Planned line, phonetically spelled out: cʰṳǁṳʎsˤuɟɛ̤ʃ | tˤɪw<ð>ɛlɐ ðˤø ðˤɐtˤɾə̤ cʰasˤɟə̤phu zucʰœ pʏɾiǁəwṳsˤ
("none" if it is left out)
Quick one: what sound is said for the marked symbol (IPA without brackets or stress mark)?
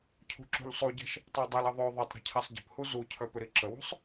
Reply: dˤ